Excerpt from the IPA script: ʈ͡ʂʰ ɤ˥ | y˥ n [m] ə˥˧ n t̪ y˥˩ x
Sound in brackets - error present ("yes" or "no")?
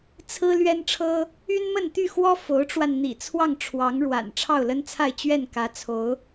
no